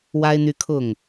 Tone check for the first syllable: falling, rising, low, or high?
high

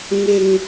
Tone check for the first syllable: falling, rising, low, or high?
low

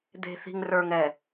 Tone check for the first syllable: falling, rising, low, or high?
low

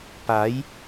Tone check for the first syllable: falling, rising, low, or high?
rising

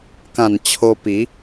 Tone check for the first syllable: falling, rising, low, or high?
low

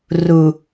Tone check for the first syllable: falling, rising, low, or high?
low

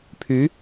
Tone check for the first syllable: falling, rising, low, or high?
rising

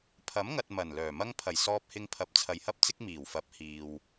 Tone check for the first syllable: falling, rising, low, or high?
rising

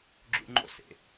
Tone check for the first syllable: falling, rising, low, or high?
high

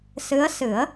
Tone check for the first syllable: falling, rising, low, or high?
rising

